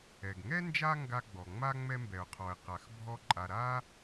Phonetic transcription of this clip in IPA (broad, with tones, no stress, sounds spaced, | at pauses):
ɛ˩ ɡ ŋ ɛ˥ n d͡ʒ a˦ ŋ ɡ a˥ ɡ͡b ɔ˩ ŋ͡m a˥ ŋ͡m ɛ˦ m b ɛ˩ ʊ̯ qʰ ɔ˩ ɪ̯ q a˩ x bʱ ɔ˦ ǃʼ a˨ ɾ a˥